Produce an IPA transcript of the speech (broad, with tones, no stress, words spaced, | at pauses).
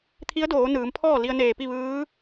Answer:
t̪ʰi˧˥ə̯doː˩˧nɯː˩˧mpʰɔː˥˨ li˧ə̯neː˧˩pi˥˨ ʋɯː˧˥